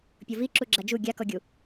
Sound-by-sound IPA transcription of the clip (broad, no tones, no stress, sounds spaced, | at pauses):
pʲ o v i ǁ u ɡ͡ǁ a d͡ʒ u ɡʲ a k ɔ ɡʲ u